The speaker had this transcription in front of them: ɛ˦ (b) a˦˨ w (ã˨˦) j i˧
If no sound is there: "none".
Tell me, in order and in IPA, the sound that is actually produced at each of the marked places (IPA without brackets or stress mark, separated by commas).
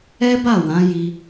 b, ã˨˦